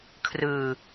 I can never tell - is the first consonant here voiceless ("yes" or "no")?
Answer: yes